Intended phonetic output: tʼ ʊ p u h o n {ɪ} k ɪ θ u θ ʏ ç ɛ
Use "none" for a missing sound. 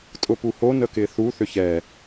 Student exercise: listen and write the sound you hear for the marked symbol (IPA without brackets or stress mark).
ə